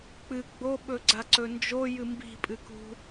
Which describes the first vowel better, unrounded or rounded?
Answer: unrounded